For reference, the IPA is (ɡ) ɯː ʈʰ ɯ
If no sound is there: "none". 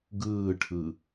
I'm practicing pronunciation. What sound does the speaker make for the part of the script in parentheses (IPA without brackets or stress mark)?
ɡ